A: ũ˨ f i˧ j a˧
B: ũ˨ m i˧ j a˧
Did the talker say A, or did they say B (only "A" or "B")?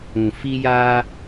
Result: A